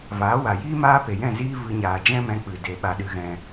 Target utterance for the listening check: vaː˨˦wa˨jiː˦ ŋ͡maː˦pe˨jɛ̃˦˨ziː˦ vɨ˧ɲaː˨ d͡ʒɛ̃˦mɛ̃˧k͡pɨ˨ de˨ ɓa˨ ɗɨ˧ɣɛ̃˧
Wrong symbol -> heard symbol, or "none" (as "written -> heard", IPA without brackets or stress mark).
ŋ͡m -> m